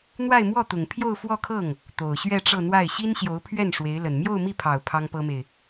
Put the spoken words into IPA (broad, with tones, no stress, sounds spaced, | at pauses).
n̪ w a˥˧ ɪ̯ m w ɔ˥˩ t̪ ʊ˨˩ ŋ pʰ j o˥˧ ʊ̯ f w ɔ˥˧ kʰ ɤ˥˩ ŋ | t̪ o˨˩ ʊ̯ ɕ ɥ ɛ˥˧ ʈ͡ʂ ɤ˥˧ n̪ w a˥˩ ɪ̯ ɕ i˥ n ɕ j o˧˥ ʊ̯ pʰ ɥ ɛ˥˩ n ʂ w e˧˥ ɪ̯ l ə˨˩ n m j o˥˧ ʊ̯ m i˥˩ pʰ ɑ˨˩ ʊ̯ pʰ ɑ˥ ŋ p ɤ˥ m e˨ ɪ̯